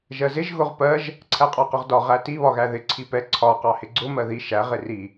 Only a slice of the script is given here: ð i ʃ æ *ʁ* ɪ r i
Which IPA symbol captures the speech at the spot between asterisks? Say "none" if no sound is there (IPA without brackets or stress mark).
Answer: ʁ